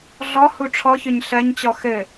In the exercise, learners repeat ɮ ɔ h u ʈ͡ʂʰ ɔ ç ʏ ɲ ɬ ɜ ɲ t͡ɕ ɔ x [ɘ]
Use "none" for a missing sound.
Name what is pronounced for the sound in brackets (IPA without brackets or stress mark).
ɘ